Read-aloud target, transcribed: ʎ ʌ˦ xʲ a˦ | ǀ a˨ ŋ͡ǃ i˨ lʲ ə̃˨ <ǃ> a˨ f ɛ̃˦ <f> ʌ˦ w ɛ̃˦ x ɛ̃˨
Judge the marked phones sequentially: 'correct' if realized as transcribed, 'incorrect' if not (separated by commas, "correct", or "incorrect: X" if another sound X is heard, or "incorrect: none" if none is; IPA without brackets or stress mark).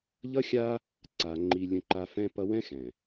correct, incorrect: p